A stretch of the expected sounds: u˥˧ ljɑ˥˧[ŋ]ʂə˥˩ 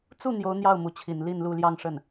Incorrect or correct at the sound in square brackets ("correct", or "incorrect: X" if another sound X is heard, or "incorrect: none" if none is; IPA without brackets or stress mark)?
correct